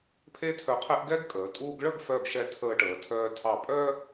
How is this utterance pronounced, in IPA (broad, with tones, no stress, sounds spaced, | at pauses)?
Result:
pʰ e˥ tʰ œ˧ qʰ ɛ˥ ʔ ɡ ɛ˥ ɡ kʼ əː˩˧ tʼ uː˧ ɡ ɭ ə˥˧ ɡ f œ˧˩ ɡ ʃ ɛ˧˩ tʰ əː˧ ʈ əː˩˧ tʰ œː˧ tʰ ɑ˧˩ pʼ œː˥